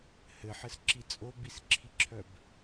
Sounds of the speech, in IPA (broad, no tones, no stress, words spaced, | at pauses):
hɘħɘsǁi t͡sʼobisǁʰiǁʰœb